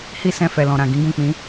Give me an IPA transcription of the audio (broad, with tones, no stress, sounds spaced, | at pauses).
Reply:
h i˦ s ɛ̃˧ f ɛ˨ l ɔ̃˨ ɾ ã˨ ɡ ĩ˨˦ ɡ ũ˦˨ k͡p ĩ˨˦